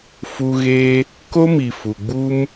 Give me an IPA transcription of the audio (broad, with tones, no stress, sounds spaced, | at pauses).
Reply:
f u˧ ɣ e˧ | k o˦ m i˨ f u˨ ɡ͡b u˧ m